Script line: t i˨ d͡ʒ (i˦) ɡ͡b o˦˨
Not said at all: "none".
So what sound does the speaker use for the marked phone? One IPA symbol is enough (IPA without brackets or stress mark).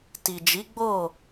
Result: i˨˦